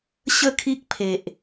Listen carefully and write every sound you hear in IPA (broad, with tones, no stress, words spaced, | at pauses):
ɕə˥˧kʰi˦k̚pʰe˨ʔ